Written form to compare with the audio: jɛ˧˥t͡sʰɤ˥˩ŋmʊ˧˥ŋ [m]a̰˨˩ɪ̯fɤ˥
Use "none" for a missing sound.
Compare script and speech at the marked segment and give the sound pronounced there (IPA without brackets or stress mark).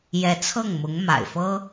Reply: m